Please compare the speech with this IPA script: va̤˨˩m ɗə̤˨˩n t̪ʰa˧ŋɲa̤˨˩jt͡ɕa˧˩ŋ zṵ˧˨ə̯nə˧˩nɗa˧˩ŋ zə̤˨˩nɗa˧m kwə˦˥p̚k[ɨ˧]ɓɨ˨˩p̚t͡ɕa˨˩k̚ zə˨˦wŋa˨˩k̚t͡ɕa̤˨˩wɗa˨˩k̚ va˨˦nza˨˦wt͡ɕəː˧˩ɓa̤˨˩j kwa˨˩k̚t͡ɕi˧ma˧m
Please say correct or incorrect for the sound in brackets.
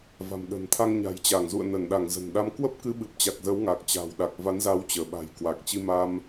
correct